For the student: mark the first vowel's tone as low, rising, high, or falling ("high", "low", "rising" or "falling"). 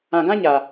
low